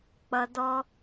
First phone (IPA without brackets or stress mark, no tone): k͡p